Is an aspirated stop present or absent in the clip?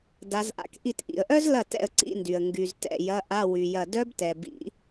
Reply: absent